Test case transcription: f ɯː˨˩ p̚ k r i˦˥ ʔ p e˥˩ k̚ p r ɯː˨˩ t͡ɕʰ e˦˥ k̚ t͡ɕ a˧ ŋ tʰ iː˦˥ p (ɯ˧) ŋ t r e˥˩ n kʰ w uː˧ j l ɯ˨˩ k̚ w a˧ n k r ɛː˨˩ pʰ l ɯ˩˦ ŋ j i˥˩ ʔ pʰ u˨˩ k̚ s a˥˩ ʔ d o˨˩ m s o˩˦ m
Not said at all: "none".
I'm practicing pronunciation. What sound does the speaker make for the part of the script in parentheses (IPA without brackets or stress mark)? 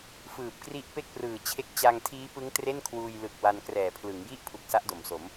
ɯ˦˥